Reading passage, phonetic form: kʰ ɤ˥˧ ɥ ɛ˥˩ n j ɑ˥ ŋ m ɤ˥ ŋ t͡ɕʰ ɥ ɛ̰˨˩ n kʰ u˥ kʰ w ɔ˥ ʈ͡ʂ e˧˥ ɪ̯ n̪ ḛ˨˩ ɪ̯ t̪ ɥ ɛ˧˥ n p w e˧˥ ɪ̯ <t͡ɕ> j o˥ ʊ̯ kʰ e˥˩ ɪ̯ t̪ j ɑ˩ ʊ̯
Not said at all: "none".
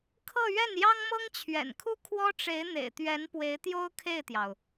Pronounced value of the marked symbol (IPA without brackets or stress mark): t̪